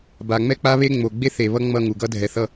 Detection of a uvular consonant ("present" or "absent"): absent